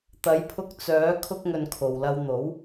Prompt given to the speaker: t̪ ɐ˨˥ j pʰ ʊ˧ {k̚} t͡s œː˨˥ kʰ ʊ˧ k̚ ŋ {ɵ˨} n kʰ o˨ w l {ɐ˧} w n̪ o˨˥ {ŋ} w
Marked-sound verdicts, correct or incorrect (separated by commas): correct, correct, correct, incorrect